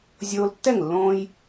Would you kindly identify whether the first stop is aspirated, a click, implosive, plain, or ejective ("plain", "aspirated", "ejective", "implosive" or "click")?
plain